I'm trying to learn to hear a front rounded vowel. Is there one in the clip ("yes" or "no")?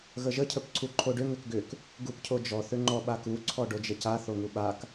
yes